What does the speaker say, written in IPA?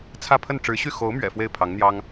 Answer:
t͡sʰä˥˧pʰə˥˩n ʈ͡ʂɻ̩˧˥ɕy˥˩ xo˧˥ʊ̯mɥɛ̰˨˩ fwe˥˩ɪ̯pʰɑ˧˥ŋn̪jɑ˥ŋ

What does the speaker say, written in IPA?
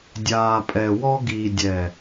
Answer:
dʲaː˨pʼɛ˨wɔ˦ ɡi˨dʲɛ˨

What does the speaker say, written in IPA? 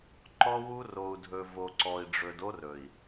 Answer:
ǃɔ˦wu˦ ro˨u̯dʱɵ˨ vo˨ǀɔ˨i̯ɖ͡ʐɵ˨do˦r ɵ˨i̯

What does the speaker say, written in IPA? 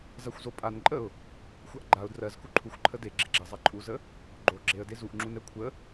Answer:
zaxʷzopʼanǃʼəʊ̯ | xʷaʔɡ͡ǃaʊ̯ drɜzku ǃʰuxʷ ǃʰəde ɡ͡ǁeɡ͡ǁɛ zˤaǃʼuzə | ɡ͡ǃo ɡ͡ǁeə̯de zuʔ ŋ͡ǁunɛkʷʰə

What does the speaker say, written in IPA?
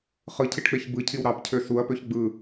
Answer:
χɯcʰiʈk͡peç bɯcʰiw ɾɑpcʰø suɐ̯pøç ɡ͡bɯ

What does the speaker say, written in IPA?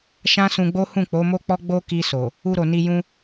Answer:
ʃã˦sũ˧ɡ͡bo˦ hũ˦˨k͡po˨˦mo˦k͡pɔ˦ ɡ͡bo˦ki˧so˨ | u˧ɾo˨ni˧ jũ˧

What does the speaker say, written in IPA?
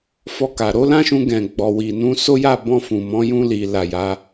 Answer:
fɔ˧ka˨ ɾo˨˦lã˦ʃũ˧ɡɛ̃˨ ɡ͡bɔ˨wi˨nũ˨˦so˦ ja˦˨bɔ̃˧ fũ˨mɔ̃˨˦ jũ˧li˨ la˨ja˨˦

